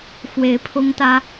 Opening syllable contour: rising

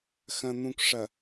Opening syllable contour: low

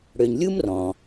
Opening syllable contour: low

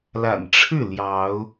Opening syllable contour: low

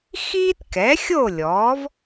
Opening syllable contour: high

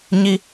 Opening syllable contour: high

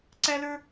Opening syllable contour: high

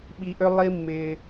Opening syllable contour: low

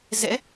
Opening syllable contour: rising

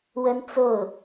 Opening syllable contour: high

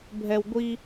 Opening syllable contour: high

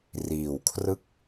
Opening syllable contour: low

